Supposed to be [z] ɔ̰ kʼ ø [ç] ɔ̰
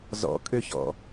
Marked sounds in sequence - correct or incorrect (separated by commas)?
correct, correct